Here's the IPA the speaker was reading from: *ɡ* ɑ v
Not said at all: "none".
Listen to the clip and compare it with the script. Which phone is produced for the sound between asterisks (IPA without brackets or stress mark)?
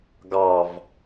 ɡ